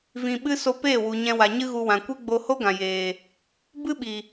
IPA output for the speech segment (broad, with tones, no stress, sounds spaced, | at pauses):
v ĩ˧ ɓ ɨ˦ s o˧ p eː˦˨ w u˨ ɲ ɛ̃˧ w a˨ ɲ ɨ˦ ɣ u˧ w ã˨ kʷ e˦ ɡ͡b o˧ h o˦ ɡ ã˨ j eː˨ | b ɨ˦ ɓ i˨